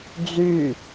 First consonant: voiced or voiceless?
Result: voiced